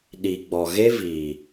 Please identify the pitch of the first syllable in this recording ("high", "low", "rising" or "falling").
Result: low